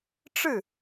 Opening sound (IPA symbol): ʈ͡ʂ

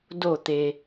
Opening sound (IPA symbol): d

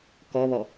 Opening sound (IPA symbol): k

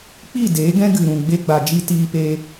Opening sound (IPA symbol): k͡p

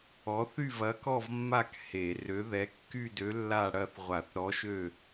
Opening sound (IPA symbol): ɔ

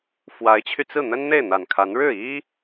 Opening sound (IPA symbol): f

